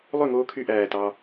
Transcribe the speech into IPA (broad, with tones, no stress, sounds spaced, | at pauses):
lˠ ø˥˩ ŋ oː˧ kʰ y˧ ʔ æː˧˩ t ɑ˧